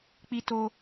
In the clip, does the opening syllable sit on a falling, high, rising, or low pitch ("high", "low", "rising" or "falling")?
high